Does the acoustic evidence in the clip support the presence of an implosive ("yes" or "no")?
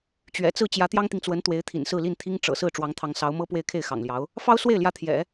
no